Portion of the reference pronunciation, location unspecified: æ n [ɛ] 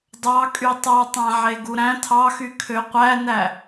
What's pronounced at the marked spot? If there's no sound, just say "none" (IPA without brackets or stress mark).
æ